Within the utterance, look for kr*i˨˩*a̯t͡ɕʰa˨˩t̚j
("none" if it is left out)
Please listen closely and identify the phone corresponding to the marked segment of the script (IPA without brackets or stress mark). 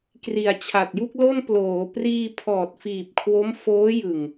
i˨˩